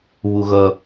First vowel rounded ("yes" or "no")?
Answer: yes